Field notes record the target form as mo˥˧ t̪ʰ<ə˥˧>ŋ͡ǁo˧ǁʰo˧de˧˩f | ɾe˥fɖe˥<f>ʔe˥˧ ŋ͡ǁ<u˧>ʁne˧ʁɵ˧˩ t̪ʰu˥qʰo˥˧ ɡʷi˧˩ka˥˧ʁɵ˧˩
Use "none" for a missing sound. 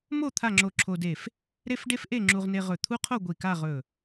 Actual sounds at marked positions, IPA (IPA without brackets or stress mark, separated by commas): a˥˧, f, u˧